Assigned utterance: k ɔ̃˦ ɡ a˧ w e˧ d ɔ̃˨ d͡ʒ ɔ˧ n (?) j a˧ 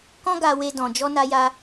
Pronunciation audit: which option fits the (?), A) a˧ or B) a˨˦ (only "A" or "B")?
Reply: A